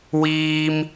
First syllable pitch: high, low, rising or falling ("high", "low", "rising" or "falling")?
high